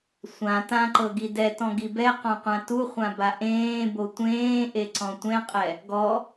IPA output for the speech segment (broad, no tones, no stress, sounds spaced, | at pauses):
sʷ ã t ã ǃ ɤ ɡ i d ɛ t ɔ̃ ɡ i b ɛ q ɔ̃ qʷ ã t u χʷ ã b a ʔ ẽː b o tʷ ẽː ʔ e ǀ ɔ̃ tʷ ɛ̃ qʼ ɛ | ɡ ɔ